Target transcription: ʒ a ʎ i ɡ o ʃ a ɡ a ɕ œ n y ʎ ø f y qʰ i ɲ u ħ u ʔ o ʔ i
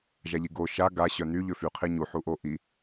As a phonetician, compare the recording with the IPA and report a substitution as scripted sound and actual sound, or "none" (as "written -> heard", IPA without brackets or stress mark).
none